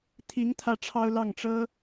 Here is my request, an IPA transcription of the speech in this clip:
t̪ʰi˧˥ŋ t̪ʰä˥ʈ͡ʂʰɑ˥ʊ̯ lɑ˥˩ŋʈ͡ʂɤ˥

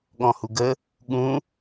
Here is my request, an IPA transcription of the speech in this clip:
ɠɔ̃huɡə | ɠũ

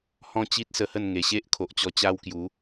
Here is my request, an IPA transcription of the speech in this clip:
hɔ̃˦t͡ɕi˦t̚sə˧hə˥˧n ŋe˨˩ɕe˦ʔ kʰo˨ʔt͡ɕɔ˧ t͡ɕa˦wkju˨˦

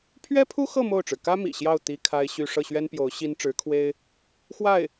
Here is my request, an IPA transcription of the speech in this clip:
pʰɥɛ˥pʰu˥xɤ˥˧ mo˥˩ʊ̯ʈ͡ʂɻ̩˩ kä˥ mḭ˨˩ɕjɑ˥˩ʊ̯ t̪i˥kʰa˥ɪ̯ɕy˥˧ ʂɤ˥˩ɕɥɛ˥npjo˧˥ʊ̯ ɕi˥nʈ͡ʂɻ̩˧˥kʰwe˥ɪ̯ | xwa˥˩ɪ̯

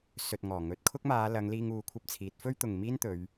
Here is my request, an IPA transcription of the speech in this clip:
sɵ˨t̚ ŋɔː˨˩ŋɵ˨˥t̚ kʰʊ˥k̚maː˨˧ lɐ˨˧ŋliː˧ŋ uː˧kʷʰɐ˥p̚t͡sʰiː˨˥t̚ fɵ˥ɥt̪ʊ˨ŋ miː˥nt̪ɵ˨˧ɥ

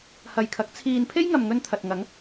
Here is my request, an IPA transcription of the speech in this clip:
hɐ˨jkʰɐ˨˥k̚ t͡sʰiː˨npʰe˥jŋɐ˨mŋɵ˧n t̪ʰɐ˨t̚ ŋɐ˨˥ŋ

